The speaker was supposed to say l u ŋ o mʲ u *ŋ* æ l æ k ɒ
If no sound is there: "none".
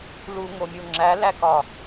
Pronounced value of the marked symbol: ŋ͡ǁ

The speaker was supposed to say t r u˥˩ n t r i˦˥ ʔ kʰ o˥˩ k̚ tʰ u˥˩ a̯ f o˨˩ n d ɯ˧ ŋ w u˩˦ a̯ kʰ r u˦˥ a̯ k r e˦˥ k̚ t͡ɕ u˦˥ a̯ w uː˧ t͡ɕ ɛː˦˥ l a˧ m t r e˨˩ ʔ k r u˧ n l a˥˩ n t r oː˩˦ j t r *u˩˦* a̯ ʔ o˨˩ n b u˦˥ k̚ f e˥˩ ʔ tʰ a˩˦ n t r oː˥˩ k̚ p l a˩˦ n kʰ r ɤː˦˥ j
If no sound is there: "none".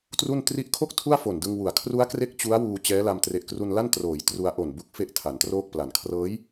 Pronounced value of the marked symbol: u˧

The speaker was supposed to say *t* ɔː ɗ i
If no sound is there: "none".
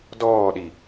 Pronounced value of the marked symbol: d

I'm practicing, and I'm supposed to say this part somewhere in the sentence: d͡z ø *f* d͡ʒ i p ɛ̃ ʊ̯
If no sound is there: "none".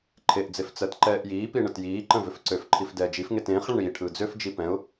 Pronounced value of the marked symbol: f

